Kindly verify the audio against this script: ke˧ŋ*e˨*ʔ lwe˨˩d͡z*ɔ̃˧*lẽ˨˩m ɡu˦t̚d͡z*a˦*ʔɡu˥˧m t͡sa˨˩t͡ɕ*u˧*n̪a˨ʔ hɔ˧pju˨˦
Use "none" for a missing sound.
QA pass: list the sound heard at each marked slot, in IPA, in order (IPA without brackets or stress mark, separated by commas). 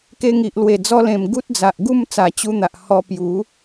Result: i˨, ɔ˧, a˨, u˧